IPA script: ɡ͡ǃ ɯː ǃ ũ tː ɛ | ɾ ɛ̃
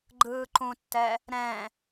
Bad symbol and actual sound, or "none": none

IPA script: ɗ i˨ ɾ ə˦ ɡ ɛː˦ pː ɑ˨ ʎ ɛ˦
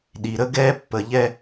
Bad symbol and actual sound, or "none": ɑ˨ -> ə˨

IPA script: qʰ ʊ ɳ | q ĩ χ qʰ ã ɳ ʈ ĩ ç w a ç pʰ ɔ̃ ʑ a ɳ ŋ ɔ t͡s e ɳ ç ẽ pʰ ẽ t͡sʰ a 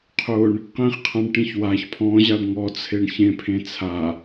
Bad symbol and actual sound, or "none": t͡s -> t͡sʰ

